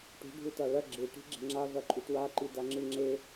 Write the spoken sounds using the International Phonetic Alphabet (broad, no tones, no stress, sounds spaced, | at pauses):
ʈ ṳ ɖʱ u t a ɭ ɐ ɡ͡ǁ ɨ ʈ i̤ ɡ͡ǁ e̤ ŋ͡ǁ a v ɐ ǃʼ u t w a ǃ i d a ŋ͡ǁ ɨ ŋ͡ǁ e